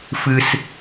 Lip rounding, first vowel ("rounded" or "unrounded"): unrounded